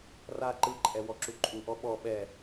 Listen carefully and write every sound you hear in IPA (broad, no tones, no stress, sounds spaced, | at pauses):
r a ǃ ɯ ǃʼ ɛ w ɔ ǁ u ǃʼ u ʔ ɔ ɓ ɔ ɓ ɛ